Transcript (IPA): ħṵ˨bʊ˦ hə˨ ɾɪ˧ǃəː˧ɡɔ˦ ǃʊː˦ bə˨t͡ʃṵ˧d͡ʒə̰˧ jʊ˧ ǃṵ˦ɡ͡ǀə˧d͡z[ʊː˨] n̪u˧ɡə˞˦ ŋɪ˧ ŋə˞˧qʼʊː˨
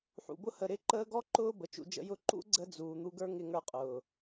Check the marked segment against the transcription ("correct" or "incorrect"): incorrect